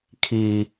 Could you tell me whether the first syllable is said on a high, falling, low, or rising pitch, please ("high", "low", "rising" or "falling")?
high